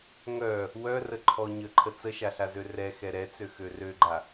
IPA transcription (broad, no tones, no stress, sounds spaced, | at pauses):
ŋ œ | w œ r ə ǃʰ ɔ ɲ ə ǃʰ ə t͡s ə ʃ a ɬ a z ø r ɛ x ɛ ɾ ɛ t͡s ø x ø r ø ɡ͡ǃ a